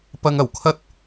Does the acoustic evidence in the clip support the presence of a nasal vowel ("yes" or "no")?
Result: no